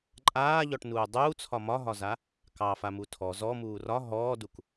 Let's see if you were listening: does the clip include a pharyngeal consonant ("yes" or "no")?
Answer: no